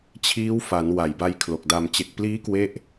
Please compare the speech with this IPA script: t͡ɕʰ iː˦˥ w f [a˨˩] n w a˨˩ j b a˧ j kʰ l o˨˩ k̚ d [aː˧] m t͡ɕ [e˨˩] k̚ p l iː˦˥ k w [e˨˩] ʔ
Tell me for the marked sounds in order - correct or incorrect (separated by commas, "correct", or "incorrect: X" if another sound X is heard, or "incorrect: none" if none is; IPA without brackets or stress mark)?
incorrect: a˩˦, incorrect: a˧, correct, incorrect: e˥˩